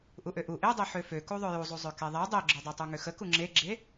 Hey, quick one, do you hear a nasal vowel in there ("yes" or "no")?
no